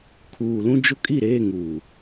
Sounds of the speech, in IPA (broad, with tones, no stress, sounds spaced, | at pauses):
kʰ uː˨ l ũ˦ d͡ʒ ʊ˦ kʼ i˦˨ ɾ eː˦˨ ŋ uː˨